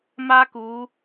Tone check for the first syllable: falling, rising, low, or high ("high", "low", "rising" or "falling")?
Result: high